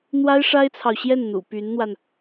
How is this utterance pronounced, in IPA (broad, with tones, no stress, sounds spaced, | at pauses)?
n̪ w a˥ ɪ̯ ʂ a˥ ɪ̯ t͡sʰ ɑ˨ ʊ̯ ɕ j ɛ˥˩ n n̪ ṵ˨˩ p y˧˥ n n̪ w a˧ n